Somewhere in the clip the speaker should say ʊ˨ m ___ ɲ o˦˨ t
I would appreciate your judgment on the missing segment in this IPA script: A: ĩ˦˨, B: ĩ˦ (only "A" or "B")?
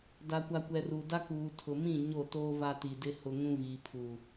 A